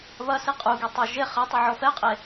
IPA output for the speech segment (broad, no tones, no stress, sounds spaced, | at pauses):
β ɐ s i qʼ u ɡ i tˤ a ʒ e χ ɛ tˤ u ʕ ɔ f ɛ qʼ e